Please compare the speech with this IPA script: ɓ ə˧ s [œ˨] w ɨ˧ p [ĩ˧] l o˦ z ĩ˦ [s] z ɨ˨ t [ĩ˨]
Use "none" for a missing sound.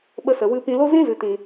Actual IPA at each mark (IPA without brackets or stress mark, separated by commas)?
ə˨, ĩ˧, none, ĩ˨